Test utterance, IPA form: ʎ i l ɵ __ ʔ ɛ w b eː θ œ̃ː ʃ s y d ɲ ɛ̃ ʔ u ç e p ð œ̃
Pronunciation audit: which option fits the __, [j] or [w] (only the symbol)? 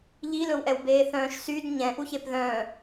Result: w